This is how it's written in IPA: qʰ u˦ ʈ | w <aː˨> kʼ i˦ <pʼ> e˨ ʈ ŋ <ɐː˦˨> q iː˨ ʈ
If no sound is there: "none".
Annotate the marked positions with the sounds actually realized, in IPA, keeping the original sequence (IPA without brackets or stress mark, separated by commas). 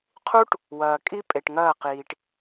ɐː˨, pʼ, ɐː˦˨